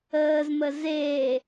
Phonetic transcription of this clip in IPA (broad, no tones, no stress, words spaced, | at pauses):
əːzmə ze